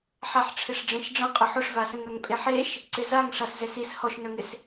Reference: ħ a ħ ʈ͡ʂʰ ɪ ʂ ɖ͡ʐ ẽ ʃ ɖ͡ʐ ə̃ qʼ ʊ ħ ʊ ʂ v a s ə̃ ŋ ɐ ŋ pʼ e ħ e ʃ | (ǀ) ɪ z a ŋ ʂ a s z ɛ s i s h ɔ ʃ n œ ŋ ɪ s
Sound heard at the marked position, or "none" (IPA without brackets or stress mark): ǀ